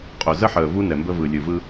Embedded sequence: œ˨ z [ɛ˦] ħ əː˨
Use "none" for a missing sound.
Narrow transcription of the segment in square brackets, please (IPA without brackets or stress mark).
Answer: ə˦